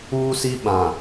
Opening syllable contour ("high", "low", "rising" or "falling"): high